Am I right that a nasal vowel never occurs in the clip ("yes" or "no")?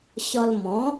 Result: no